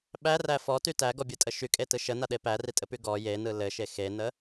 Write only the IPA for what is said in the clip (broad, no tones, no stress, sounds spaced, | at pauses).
ɓ æ r æ f ɔ t y t æ ɡ ɔ bʲ ɯ tʼ ə ʃ y kʼ e t ɯ ʃ ə n a ɗ e p æ r i tʼ ɘ p y ɡ ɔ j e n ɯ l ɘ ʃ e x e n ə